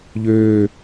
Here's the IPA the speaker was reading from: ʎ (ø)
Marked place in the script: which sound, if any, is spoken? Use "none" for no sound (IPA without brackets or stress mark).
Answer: ø